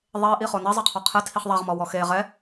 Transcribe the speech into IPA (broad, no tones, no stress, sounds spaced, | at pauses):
ðˤ e ʔ i χ o n i zˤ ɛ qʰ ɔ qʰ ɛ tʰ i χ ðˤ a ʁ m ɔ w ɔ x e ʁ ɛ